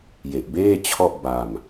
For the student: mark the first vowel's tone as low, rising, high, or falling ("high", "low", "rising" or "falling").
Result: low